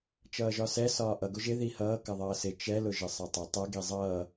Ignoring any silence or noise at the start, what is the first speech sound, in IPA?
t͡ʃ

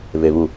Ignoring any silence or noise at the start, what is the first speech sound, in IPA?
β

